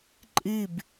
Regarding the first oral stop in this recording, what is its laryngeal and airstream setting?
click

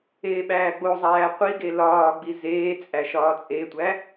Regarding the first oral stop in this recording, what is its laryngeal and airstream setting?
implosive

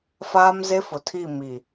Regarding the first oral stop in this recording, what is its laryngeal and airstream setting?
aspirated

